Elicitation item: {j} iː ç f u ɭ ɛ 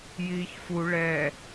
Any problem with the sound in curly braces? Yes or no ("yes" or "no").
no